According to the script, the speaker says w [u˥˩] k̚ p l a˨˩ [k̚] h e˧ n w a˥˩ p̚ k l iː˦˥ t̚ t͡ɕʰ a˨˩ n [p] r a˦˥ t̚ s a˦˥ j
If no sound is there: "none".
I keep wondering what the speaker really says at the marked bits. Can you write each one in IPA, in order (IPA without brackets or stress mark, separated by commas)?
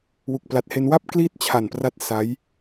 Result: u˨˩, t̚, p